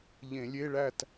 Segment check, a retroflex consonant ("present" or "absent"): present